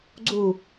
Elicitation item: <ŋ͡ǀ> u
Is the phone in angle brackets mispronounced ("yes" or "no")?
yes